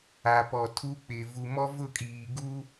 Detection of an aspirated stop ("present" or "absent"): present